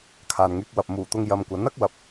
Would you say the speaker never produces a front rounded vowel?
no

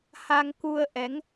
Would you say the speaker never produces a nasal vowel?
yes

